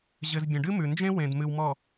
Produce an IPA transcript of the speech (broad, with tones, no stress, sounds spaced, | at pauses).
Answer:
ʑ ɘ˨ z bʲ ə̃˨ ɖ ɨ˦ m ʉ˨ n d͡ʒ ẽ˦ w ẽ˨ d m ɨ˨ w m ɔ˨